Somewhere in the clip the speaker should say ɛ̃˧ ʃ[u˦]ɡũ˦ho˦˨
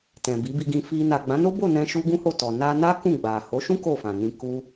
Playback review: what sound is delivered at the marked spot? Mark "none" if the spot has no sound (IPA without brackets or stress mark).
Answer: u˦